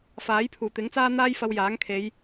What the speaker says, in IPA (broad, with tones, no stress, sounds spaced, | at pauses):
f aː˨˥ j pʰ uː˨˩ t̪ ɪ˨˥ ŋ t͡s aː˥ n̪ aː˥ j f ɐ˧ w j aː˨˥ ŋ kʰ e˨˧ j